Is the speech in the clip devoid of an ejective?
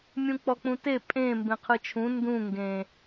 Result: no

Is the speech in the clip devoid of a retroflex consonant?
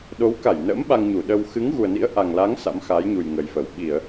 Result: yes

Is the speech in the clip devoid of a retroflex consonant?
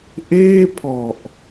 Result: yes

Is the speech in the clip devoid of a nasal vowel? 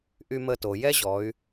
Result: yes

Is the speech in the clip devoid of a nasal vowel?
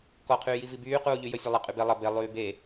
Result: yes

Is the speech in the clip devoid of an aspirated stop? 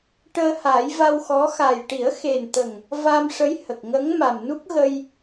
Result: yes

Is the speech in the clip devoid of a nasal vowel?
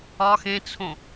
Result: no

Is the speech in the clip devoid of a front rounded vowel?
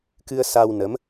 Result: yes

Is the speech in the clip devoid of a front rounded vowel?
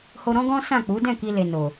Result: yes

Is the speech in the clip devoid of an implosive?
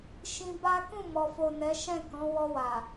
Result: yes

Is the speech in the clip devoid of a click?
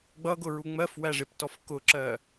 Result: no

